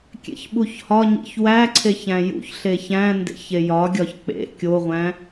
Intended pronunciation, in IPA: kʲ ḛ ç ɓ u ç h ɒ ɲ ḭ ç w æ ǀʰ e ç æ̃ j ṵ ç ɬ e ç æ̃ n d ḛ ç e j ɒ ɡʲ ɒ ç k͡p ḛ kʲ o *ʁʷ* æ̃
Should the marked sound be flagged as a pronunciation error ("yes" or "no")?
no